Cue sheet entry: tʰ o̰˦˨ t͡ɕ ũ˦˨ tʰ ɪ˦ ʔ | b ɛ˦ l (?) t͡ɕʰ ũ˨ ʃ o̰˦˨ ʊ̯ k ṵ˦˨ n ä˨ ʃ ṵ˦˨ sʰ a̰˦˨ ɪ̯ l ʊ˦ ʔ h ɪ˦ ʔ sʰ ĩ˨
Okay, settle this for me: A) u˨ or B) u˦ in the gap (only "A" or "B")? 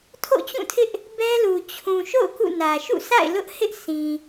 A